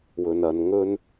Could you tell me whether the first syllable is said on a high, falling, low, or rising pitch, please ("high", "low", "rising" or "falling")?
low